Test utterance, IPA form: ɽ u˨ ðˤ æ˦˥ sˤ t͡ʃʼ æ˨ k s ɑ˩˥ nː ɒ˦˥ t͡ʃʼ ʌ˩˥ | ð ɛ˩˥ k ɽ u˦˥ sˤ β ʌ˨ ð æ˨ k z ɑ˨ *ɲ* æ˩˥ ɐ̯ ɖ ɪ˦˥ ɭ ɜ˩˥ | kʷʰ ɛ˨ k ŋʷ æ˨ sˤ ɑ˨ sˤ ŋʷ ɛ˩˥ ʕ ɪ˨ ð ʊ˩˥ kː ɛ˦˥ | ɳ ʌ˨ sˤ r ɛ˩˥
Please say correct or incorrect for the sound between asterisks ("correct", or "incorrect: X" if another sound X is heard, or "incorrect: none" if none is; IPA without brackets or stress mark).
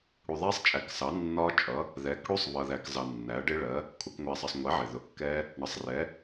incorrect: nː